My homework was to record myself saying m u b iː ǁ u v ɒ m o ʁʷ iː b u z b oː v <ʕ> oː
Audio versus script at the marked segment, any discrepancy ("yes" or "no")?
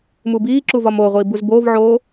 no